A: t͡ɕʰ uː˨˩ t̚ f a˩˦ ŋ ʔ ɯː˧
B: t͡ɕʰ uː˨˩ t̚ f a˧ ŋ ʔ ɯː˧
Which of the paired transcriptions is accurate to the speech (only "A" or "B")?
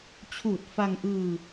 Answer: B